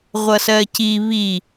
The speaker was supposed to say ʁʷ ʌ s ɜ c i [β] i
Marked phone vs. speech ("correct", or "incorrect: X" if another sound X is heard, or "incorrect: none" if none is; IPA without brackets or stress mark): correct